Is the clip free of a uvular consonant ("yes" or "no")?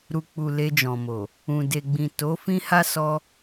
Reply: yes